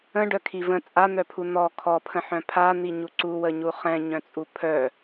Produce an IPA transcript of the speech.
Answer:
ə̃ ɖ œ kʰ i v ə̃ t͡sʼ a n̪ œ pʰ u n̪ ɔ kʰ ɔ pʰ ə̃ ħ œ̃ pʰ a n̪ i ɲ u ǀ u w ə ɲ u χ ɛ̃ ɲ œ̃ t͡sʼ u pʰ œ

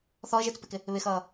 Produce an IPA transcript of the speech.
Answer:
θ ɔ ə̯ ʒ ɪː t͡s p ɪ k ɪ | β ɪ x ʌː

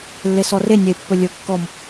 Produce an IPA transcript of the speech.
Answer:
lː e s ɔ r e nʲ e pː ɵ lʲ ɵ kː ɔ m

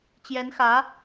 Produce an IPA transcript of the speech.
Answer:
t͡ɕ j ɛ˧˥ n x ä˧˥

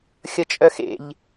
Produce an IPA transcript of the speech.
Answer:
xʲ ʌ t͡ʃʼ œ x ḛ ʎ

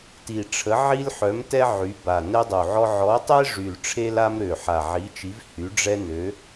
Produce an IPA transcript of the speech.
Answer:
t i˨˩ ʈ͡ʂʰ ə˨˦ ʕ i˦ l ħ œ˨˦ m t ɛ˦ ʕ y˨˦ b a˨˩ n ɛ˦ dˤ u˨˩ ʕ ɔ˦ ʕ ɔ˨˦ tˤ e˦ ʐ y˨˩ l ʈ͡ʂʰ e˦ l a˦ m ɾ ø˨˩ ħ a˨˩ ʕ i˨˦ t͡ʃ i˨˦ v h y˨˦ ɖ͡ʐ ɛ˦ n ø˨˦

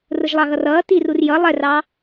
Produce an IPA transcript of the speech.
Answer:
r ʊ ʒ lˠ ɑ ɣ ʌ r ʌː t i r u r j ʌ lˠ ɛ r ɑ

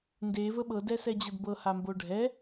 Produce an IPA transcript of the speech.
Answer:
n d e v ə ɓ ɤ d ɛ s ɛ d͡ʑ ɤ d b ɤ h a m b o ɖʱ ɛ

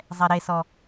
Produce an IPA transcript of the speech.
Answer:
zˤ ɛ ɾ e s ɔ

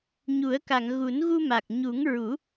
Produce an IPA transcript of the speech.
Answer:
ɲ u˨˩˦ ə̯ k a˨˩˨ ŋ ɣ u˨˩˦ n ɣ u˧ m a˨˩ k̚ ɲ u˨˩˦ ŋ ɹ u˨˩˦

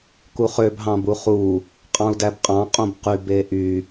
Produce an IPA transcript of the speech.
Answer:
k u χ ø b ɦ ɑ̃ b u χ u | qʼ ɑ̃ u̯ d æ b qʼ ɑ̃ qʼ õ b q y b e ʔ y

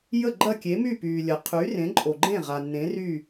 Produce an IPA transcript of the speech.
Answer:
j ə˥˩ ɡ͡ǃ ɐ˥˩ kʲ e˩˥ m y˥˩ p yː˩ lʲ ɐ˩ qʰ y˩˥ r ẽ˩˥ ǃʼ o˩ ɡ͡ǃ ẽ˥˩ ʁ a˩ nː ẽ˩˥ r y˥˩

